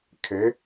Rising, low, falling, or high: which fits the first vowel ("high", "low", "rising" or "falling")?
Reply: rising